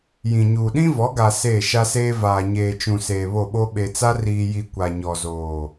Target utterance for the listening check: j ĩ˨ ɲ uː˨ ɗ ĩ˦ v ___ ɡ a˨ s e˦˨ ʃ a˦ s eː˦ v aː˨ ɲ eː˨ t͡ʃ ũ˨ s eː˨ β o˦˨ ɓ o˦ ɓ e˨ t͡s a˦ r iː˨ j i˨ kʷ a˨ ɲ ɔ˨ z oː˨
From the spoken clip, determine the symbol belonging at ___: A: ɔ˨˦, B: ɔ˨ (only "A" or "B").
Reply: A